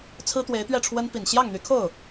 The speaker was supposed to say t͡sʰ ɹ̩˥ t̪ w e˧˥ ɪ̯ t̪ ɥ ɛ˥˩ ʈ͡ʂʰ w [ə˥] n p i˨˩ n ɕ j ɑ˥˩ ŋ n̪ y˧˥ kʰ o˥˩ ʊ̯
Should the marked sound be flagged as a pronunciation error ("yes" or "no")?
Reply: no